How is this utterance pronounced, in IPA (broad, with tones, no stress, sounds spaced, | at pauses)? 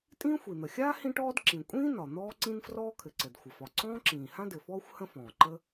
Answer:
tʼ ĩː˥ xʷ i˩ n̪ ə˩ xʲ aː˥ h ĩ˥ ʈ ɔː˥ d ǁ ĩ˩ kʷʼ ĩː˥ n ɒ˩ n̪ ɔː˥ ǀ ĩ˥ n f r ɔː˥ kʰ ɘ˩ ǀ ɘ˩ d xʷ ə˩ f ɒ˩ ǀ ɔ̃ː˥ ǁ ĩː˩ h ã˥ d ɘ˩ f ɔː˥ xʷ h ə̃˥ f ɔ̃ː˩ ǃ ə˥